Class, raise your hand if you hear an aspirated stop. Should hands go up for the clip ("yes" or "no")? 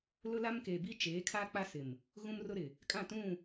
yes